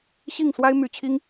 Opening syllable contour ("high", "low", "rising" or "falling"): falling